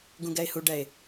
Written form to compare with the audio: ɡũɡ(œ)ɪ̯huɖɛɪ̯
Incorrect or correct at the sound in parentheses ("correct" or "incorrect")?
incorrect